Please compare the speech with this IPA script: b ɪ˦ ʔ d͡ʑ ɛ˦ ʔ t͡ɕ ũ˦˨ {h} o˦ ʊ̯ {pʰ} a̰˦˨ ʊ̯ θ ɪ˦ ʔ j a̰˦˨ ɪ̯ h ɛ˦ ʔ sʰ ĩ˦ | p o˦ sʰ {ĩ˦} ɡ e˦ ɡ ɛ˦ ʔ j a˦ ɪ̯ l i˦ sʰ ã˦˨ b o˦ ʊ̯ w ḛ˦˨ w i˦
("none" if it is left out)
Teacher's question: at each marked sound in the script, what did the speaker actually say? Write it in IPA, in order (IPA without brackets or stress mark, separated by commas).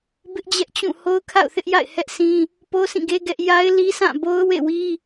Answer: h, kʰ, ĩ˦˨